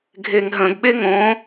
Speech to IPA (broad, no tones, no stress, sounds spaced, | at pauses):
ɡʱ e ŋ ɦ ə̃ ɡ ɓ e ŋ õ